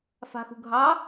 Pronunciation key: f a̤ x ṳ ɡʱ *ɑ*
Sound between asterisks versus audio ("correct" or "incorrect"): correct